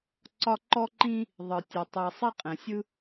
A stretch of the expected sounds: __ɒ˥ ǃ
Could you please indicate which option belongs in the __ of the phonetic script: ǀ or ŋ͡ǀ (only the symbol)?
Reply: ǀ